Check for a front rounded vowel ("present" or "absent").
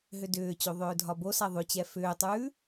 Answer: present